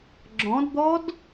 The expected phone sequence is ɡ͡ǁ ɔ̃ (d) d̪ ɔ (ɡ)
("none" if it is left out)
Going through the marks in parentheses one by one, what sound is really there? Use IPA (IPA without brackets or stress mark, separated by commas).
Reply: d, d